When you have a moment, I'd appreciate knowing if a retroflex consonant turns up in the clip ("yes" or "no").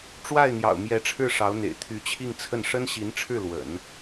yes